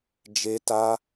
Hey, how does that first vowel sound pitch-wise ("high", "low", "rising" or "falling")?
high